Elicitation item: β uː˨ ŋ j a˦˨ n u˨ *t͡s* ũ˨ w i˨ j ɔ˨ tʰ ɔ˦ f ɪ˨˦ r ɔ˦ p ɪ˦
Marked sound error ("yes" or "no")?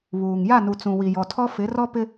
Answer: no